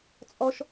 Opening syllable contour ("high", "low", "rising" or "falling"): high